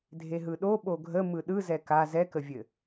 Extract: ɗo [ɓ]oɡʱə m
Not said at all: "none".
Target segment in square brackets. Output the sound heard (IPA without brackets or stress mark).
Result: ɓ